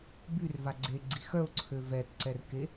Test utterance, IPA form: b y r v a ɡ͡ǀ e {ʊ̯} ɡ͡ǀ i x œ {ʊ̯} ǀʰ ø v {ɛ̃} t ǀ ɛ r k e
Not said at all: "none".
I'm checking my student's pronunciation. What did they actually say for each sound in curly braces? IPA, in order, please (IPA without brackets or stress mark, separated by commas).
none, ʊ̯, ɛ